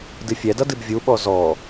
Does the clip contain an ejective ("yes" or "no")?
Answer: no